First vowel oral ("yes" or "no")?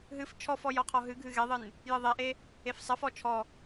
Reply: yes